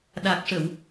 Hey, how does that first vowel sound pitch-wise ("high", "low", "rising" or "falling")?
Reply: low